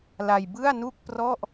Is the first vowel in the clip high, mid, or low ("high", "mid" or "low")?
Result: low